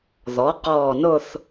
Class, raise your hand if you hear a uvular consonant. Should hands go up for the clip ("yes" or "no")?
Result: yes